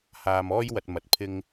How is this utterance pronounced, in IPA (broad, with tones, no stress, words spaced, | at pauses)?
haː˧mɔː˥jwɐ˧t̚ mɐ˨˥t̚pʰɪ˧ŋ